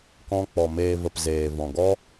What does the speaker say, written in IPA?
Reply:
k ɔ̃˦ k͡p ɔ˨ m eː˧ v ə˨ p z eː˨ v ɔ̃˨ ɡ ɔ˦

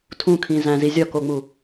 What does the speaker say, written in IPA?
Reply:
tʰ ũ kʰ ĩ z æ̃ z i zʲ ɒ k o ŋ͡m u

